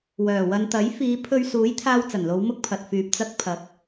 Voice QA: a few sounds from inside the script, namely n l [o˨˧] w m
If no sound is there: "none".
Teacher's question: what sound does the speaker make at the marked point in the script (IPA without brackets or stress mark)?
o˨˧